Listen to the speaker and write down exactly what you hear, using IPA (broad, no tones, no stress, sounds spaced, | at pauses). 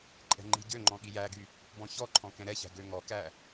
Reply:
ǃʼ ɛ̤ ŋ͡ǃ i̤ ɟ ø ŋ͡ǃ ɔ̃ ɠ i j æ ɡ y | b ɔ̃ ç ɔ ǃʰ ɔ̃ k ɛ̃ ɾ ɛ ç æ̤ ɡ ø ŋ ɔ k æ